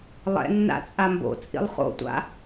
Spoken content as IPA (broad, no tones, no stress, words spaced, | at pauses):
lˠɛ̰ nːa̰t͡sʼambo̰ t͡sʼḭlˠχo̰tʷa̰